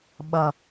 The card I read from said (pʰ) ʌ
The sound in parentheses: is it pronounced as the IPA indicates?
no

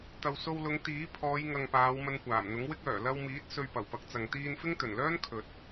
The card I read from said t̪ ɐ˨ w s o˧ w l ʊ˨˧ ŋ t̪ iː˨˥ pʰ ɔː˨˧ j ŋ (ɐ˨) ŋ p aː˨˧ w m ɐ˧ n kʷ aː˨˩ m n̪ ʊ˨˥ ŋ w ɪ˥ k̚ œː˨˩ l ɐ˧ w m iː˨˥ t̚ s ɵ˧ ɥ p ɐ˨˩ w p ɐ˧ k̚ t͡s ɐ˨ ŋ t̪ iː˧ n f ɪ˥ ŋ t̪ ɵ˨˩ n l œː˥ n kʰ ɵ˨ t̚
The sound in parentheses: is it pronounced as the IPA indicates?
yes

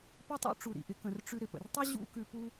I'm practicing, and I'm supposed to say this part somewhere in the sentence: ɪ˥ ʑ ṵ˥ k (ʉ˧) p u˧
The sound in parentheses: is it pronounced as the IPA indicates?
yes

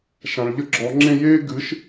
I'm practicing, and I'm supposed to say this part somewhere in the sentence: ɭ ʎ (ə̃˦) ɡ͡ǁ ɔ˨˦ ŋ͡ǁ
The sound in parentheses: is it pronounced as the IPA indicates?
no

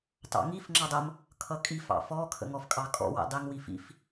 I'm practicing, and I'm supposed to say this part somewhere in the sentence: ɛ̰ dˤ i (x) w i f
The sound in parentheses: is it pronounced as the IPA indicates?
no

